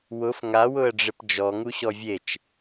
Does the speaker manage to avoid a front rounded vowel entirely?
yes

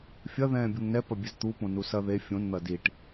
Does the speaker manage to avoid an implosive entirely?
yes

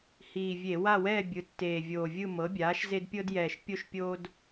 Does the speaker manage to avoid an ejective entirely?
yes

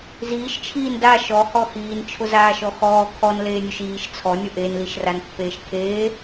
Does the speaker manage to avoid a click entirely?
yes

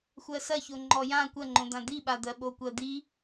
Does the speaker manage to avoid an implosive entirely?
no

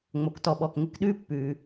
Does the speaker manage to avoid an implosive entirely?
no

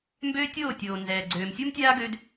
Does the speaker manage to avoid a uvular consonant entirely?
yes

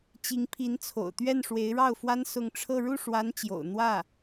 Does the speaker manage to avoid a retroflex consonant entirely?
no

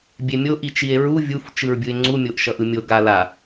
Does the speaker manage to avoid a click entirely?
no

